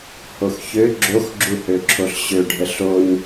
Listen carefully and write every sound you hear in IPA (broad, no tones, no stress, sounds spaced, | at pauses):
h o x ç ø ɡ͡ǁ o x ɡ͡ǁ u h ø ǁʰ o ɬ ɕ ø ɖʱ ə ɬ o ɲ